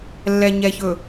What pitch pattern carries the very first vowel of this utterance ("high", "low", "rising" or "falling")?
low